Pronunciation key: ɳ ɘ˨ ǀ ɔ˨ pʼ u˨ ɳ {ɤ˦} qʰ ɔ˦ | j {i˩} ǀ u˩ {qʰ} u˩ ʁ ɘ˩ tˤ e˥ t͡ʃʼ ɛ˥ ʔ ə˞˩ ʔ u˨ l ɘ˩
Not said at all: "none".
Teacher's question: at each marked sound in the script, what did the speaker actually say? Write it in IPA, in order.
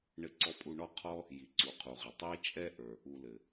ɔ˦, i˩, qʰ

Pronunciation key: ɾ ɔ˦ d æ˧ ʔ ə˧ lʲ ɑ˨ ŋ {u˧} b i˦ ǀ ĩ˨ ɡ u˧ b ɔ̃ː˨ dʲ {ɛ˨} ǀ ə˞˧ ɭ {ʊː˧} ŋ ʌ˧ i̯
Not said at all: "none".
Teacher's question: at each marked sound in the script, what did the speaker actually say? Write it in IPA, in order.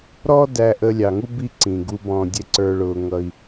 u˦, ɛ˧, ʊː˧

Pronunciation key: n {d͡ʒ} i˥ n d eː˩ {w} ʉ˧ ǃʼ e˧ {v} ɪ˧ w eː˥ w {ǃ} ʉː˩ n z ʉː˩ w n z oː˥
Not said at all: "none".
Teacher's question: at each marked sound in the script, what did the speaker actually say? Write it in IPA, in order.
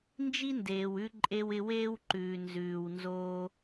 d͡ʒ, w, w, ǃ

